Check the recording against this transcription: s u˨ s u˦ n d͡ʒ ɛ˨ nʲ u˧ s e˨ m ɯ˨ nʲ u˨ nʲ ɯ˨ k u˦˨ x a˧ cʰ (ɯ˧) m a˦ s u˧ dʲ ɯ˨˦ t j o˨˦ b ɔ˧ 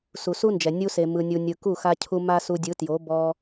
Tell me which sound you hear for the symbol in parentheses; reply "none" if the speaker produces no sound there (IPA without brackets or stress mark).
u˧